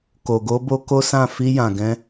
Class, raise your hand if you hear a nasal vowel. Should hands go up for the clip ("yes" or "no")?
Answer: yes